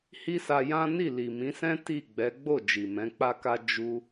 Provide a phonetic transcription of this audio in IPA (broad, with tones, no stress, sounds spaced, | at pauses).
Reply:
h i˦ s a˧ j ã˦ n i˦˨ l i˨ m ĩ˨˦ s ɛ̃˦ t i˦˨ ɡ͡b ɛ˨˦ ɡ͡b o˦˨ d͡ʒ i˨ m ɛ̃˨˦ k͡p a˦ k a˦ d͡ʒ u˧